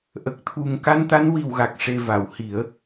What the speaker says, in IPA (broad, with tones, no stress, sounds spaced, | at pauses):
ʔ ə˨˩ k̚ t̪ʰ u˨˩ ŋ k a˧ n t̪ a˧˥ n w i˨˩ w ɣ a˨˩ k̚ ʂ e˨˩ v a˨˩˨ w h i˨˩˦ ə̯